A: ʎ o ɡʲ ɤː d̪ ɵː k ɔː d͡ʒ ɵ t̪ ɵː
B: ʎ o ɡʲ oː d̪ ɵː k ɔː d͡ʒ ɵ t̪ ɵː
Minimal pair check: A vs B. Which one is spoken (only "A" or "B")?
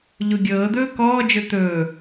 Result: A